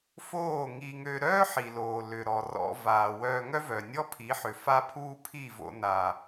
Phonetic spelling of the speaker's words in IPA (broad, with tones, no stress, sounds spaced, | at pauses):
f oː˦˨ ŋ i˧ ŋ ø˧ ɾ œː˦ ħ i˨ l oː˨ l ʏ˨ ɾ ɔ˨ r ɔ̰˧ v aː˨ w œː˧ ŋ œ˦ v œ˨ nʲ ɔ˦ pʰ i˨˦ ħ ʏ˨ f a˦ pʰ uː˦ pʰ i˦˨ v o̰˧ n aː˨